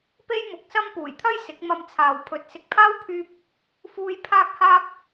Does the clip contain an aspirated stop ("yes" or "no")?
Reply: yes